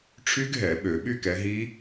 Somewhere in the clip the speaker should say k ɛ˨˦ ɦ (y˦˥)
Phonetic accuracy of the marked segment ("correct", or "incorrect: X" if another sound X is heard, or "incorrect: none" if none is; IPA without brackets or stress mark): incorrect: i˦˥